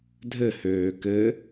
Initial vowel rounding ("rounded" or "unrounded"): unrounded